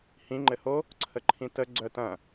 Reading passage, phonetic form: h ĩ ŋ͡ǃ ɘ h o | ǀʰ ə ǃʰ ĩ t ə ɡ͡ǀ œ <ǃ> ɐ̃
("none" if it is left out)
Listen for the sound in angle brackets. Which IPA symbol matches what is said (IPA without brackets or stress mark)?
t